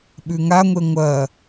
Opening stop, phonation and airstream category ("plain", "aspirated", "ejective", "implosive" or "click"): implosive